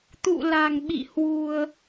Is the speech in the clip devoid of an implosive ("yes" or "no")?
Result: no